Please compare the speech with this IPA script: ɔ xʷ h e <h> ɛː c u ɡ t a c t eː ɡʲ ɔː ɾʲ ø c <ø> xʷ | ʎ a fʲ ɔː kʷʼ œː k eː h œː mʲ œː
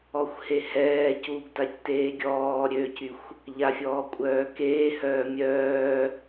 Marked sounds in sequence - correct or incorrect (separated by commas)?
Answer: correct, incorrect